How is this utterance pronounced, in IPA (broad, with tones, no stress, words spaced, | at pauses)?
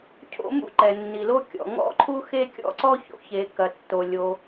cʰo̰˥mṵ˥ ǃɛ˩nːi˩lo˥kʲɔ̰˩ ŋɔ̰˥ǃʰu˥ xe˥kʲɔ̰˥ǀɔ˥ ço̰˩çe˩ kɐ˩tːo˩ lʲo˩